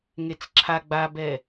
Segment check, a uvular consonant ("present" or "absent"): absent